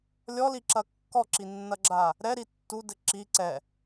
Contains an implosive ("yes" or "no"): no